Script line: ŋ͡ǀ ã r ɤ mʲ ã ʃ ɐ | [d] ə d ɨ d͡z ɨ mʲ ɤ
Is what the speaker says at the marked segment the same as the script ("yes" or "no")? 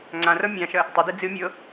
no